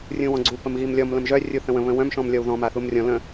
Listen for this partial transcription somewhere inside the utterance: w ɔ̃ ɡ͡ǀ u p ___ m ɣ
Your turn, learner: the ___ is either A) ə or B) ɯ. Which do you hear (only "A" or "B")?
A